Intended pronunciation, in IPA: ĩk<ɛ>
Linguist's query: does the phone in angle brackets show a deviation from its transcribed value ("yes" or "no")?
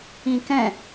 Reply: yes